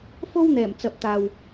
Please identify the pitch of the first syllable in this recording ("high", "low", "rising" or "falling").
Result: high